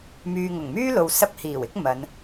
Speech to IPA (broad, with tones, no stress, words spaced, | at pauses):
myː˨ŋʊ˨˩ŋmyː˥ lo˨w sɐ˧p̚hiː˨˩wɪ˨˥k̚ mɐ˨˧n